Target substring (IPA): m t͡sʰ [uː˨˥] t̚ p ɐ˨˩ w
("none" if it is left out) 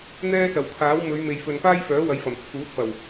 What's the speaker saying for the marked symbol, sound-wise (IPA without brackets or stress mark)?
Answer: uː˨˥